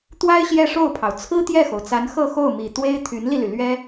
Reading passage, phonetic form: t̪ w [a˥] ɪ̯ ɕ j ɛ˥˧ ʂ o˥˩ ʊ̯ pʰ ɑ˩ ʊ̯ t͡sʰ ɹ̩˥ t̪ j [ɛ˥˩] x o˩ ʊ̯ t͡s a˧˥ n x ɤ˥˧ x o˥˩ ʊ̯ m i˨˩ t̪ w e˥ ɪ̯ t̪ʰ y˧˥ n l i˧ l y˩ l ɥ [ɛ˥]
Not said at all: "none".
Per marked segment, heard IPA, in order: a˥, ɛ˥˩, ɛ˥

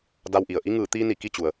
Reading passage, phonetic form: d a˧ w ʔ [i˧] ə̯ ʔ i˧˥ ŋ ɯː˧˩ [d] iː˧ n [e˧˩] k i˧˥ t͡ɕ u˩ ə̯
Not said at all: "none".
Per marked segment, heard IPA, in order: i˩, t̪, i˧˩

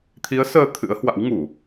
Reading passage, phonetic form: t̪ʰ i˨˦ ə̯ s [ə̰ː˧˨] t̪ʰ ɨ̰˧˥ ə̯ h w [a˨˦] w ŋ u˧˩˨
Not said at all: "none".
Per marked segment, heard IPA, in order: əː˧, a̰˧˥

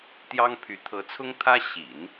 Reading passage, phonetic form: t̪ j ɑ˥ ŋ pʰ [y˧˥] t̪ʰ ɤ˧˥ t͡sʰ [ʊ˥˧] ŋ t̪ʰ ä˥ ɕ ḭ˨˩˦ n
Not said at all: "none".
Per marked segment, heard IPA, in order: y˧˥, ʊ˥

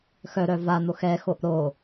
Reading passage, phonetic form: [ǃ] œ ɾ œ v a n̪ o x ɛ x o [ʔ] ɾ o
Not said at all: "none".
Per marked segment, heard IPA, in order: x, ʔ

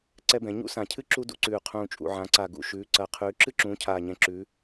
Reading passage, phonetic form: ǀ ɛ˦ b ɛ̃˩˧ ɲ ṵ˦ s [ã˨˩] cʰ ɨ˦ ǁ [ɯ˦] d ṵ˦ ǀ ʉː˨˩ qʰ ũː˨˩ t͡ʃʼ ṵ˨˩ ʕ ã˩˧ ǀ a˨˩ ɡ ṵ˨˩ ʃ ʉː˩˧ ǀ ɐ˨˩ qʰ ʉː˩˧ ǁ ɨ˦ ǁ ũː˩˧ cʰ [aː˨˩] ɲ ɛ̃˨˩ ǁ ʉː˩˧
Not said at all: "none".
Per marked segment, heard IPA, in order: ã˨˩, u˦, aː˨˩

